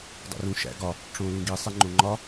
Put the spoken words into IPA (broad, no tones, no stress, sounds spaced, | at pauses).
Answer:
dˤ ḭ r ũ ʃ æ̰ ɡ ɒ | ʈ͡ʂ õ l ũ ɡ i sˤ e ŋ͡ǃ õ ŋ͡ǃ ɒ